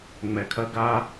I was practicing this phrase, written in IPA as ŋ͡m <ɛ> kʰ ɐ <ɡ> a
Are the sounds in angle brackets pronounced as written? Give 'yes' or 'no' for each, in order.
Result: yes, yes

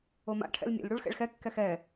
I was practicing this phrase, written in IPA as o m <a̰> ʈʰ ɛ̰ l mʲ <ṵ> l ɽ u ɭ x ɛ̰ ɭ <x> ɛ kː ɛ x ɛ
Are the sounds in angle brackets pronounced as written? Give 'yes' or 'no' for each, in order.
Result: yes, yes, yes

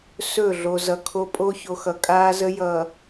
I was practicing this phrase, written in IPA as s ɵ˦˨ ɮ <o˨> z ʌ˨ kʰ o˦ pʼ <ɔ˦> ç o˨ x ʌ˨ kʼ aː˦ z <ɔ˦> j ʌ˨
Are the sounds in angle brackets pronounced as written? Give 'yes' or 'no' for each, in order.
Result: yes, no, no

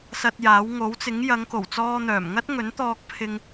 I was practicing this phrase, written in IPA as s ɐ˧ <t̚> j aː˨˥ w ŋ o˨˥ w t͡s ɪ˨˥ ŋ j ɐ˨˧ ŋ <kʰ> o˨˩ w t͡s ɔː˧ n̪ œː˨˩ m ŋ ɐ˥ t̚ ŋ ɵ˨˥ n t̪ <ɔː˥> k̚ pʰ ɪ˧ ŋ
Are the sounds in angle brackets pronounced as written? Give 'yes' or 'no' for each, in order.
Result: yes, no, no

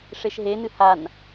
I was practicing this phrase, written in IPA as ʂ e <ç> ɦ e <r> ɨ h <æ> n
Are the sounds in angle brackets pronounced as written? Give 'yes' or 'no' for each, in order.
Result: no, no, no

